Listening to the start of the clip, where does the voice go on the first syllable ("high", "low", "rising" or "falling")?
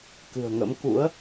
low